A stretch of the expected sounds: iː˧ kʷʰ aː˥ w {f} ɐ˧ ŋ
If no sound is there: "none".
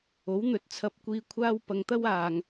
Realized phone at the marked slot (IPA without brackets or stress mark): p